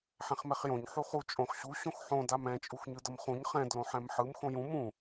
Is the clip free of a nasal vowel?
no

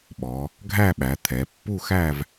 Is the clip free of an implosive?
no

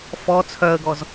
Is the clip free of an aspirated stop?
no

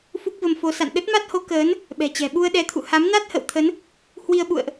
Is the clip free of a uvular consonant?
yes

